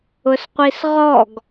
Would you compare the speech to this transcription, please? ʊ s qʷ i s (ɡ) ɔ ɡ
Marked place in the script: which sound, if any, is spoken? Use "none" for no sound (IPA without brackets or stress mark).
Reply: ʁ